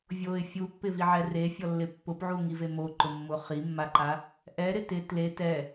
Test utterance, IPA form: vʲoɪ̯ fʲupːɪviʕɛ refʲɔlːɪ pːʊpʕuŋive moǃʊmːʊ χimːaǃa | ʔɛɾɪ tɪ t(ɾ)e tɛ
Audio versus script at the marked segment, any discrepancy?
yes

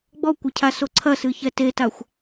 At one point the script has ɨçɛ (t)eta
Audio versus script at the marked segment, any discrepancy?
no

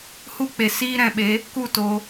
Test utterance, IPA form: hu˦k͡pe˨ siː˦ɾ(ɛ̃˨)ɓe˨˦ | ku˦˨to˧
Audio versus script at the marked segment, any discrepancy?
no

